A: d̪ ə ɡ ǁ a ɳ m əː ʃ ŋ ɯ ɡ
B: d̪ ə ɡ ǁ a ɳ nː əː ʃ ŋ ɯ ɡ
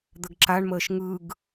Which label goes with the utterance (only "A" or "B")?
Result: A